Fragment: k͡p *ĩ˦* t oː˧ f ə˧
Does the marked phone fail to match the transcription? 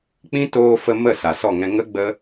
no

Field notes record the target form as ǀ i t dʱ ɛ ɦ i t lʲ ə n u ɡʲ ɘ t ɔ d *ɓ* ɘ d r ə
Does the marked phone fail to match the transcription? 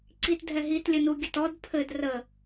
yes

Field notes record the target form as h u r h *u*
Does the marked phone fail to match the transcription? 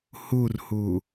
no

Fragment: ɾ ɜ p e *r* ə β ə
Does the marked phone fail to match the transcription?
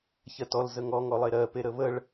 yes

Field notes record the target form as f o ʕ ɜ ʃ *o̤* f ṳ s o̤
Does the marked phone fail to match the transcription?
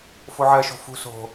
no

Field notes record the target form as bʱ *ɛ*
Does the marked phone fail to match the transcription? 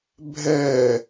no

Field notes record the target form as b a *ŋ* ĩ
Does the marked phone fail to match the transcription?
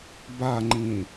yes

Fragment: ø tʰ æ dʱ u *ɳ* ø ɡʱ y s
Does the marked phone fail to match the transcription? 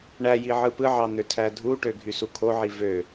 yes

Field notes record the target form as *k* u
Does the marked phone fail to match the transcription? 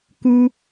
no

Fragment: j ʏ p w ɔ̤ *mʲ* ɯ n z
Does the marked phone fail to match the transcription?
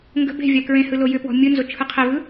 no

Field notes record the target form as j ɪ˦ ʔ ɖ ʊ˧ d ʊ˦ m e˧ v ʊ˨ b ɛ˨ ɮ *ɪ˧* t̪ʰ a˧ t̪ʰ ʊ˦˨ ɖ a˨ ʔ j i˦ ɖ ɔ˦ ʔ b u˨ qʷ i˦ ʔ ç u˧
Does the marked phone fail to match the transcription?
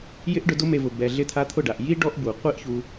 no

